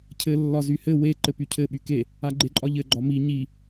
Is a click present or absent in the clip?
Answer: present